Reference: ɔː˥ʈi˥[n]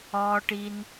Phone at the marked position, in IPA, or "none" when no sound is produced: n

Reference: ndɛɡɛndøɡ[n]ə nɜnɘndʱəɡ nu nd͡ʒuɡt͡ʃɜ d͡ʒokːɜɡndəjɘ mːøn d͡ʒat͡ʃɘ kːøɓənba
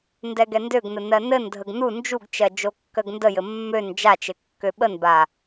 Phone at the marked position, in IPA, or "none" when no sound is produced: n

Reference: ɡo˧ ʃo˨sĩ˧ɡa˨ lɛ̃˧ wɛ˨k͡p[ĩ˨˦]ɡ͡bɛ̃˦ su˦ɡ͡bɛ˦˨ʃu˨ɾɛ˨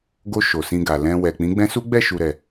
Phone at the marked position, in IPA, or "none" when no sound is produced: ĩ˨˦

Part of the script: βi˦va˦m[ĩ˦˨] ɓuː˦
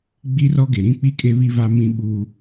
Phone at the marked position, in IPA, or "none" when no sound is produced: ĩ˦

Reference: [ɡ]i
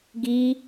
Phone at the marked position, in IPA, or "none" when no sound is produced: ɡ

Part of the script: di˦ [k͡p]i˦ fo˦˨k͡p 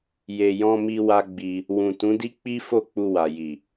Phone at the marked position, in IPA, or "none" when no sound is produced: k͡p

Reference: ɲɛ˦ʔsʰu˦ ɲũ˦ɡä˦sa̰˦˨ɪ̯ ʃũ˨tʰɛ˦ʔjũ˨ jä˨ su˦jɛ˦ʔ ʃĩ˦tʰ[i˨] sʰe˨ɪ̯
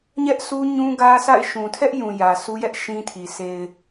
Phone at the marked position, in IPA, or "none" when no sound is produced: i˨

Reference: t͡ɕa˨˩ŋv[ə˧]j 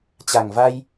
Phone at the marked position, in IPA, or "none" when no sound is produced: a˧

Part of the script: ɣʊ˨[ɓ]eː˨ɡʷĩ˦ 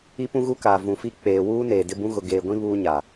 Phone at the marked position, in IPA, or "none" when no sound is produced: ɡ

